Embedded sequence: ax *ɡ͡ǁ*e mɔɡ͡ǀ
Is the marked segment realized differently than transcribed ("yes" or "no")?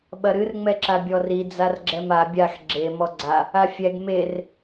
no